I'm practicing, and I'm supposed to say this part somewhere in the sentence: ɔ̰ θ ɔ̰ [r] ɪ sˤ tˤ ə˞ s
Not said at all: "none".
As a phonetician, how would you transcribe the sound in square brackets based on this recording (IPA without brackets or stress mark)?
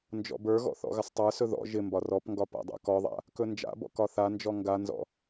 ɣ